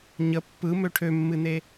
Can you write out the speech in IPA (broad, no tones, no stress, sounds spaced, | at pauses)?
ɲ ə pː ɯ m ø ʈʰ ø mː ɨ n e